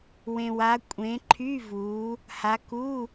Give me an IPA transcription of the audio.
wẽ˨wa˨˦ kʷʼẽ˨˦ ǃʰy˧˥˧vuː˨˦ | ha˨˦ku˧˥˧

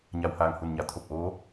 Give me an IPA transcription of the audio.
ɲa˧˩whaː˧˩ŋ hu˧˩nɲa˩˧ t̪ʰo˧˩p̚ʔoː˧˥

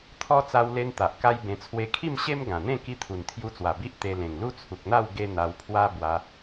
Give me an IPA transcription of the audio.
t̪ʰɔ˦ t͡sa˧wle˧n t̪a˨ʔka˦jbẽ˧ t͡sʰwe˧kʰi˥˧mɕe˦m ɡã˨˩n̪ẽ˥˧ ki˧t̪ʰu˨˩nt̪ʰju˧t͡swa˨˩ bi˦ʔt̪e˧ lẽ˨˩ŋlu˦t͡sʰu˨k̚n̪a˥˧w ɡe˦n̪a˧wpʰwa˦ bwa˧

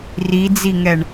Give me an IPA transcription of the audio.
rid͡ziŋɛɳ

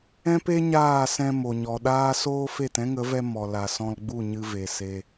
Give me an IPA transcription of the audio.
ɛ̃˦pe˦ ɲaː˦˨sɛ̃˧ mo˨ɲɔ˨ɗaː˦ soː˦ fe˦˨tɛ̃˦ŋə˨˦ vɛ˧ mɔ˨la˨sɔ̃˧lɡ͡bu˦˨ ɲɨ˦ve˧ se˧

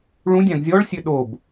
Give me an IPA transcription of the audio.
ɭũdʲãɡ zʲɔɭ sʲɘɗob

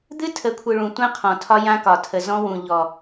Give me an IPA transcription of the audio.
d̪ɨ˦tʰə˨˦kʷʰɨ˨ ɭũ˨tʷã˦ qʰɔ̃˨tʰɒ˦jã˦ kɒ˨tʰə˨zɔ̃˦ wũ˨ʎɔ˨

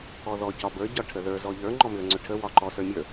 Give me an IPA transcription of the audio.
ɔðɔ cɒbə˞ ɟɒʈʰəðə˞ zɔʎə˞ ŋ͡ǃɔmʏə̯ŋ͡ǀʏʈʰə wɒǃɔ sə˞mʲə˞

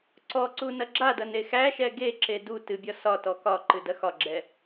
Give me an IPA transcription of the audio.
ǀɔǀu nɐɡ͡ǁadɐn exæʃɛ ɡeǁe du tɨbʲɒ sɒtɔ kɒ ǃɨdɐxɒɡ͡ǁɛ

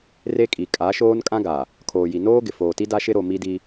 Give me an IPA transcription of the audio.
re˦kʼi˨ kʼa˨˦ʃoː˦n kʼã˦ɡa˨ | kʰoː˨ji˨ noː˦ ɡɪ˨foː˨ti˦ da˦ʃɪ˦ ɾo˨ mi˦di˦

